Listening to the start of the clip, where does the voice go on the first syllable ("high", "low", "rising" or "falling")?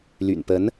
low